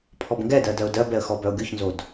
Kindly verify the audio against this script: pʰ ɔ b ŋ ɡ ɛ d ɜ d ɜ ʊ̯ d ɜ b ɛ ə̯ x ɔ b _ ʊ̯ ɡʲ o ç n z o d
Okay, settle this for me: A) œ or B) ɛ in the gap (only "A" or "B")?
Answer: A